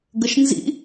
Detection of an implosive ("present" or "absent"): absent